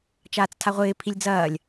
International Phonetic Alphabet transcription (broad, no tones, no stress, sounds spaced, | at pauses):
t͡ʃ aː t͡s tʰ a ʁʷ ɪː pʰ i lʲ d͡z ɐː lʲ